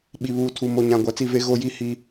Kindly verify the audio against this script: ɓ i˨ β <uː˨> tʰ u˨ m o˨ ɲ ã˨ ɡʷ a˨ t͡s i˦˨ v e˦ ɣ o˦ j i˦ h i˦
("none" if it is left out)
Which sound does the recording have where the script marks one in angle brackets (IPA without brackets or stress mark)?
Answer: uː˨